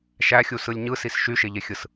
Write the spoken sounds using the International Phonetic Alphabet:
ʃæxʲusɯlʲ ɲɯsis ʃyʃeʎexʲɯs

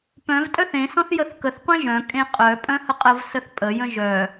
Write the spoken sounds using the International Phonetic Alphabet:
pœ̃v tʼœθẽ sɔ̃θjəθkəθ qʷẽʒœ̃ kʼẽqʼœ pʼœ̃həqʼəv səθpʼə jə̃ʒœ

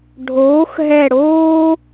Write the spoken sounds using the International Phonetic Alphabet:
ɖʱoː˨˥xɦɛ˦˨ɽoː˥

